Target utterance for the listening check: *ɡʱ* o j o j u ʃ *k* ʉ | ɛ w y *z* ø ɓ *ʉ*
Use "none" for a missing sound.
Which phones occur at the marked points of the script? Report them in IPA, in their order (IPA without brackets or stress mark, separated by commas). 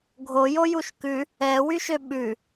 ɡʱ, k, ʃ, ʉ